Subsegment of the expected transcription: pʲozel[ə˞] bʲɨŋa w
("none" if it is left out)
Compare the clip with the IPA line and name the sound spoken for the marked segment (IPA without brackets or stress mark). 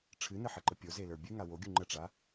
ə˞